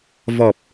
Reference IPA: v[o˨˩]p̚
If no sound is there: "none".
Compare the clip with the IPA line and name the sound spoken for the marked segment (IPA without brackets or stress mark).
ɔ˨˩